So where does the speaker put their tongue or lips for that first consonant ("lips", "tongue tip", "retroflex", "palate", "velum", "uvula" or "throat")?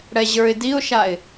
retroflex